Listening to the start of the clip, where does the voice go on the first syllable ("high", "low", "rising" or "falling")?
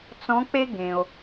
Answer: rising